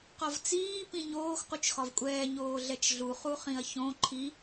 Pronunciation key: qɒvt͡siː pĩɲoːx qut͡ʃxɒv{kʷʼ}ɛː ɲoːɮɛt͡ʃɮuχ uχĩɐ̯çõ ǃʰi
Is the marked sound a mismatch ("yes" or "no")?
no